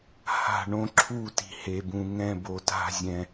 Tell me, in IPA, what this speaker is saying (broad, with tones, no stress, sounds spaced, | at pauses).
h a̤˧˩ ɳ õ˧˩ ǁʰ u˧˩ t i̤˩ h e˩ b ũ˩ ŋ ɛ̃˧˩ b o˩ t a̤˧˩ zʲ ɛ̃˩